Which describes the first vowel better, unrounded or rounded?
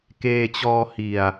unrounded